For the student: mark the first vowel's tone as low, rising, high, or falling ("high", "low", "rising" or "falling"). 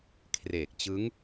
low